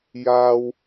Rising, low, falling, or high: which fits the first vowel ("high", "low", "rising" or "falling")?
low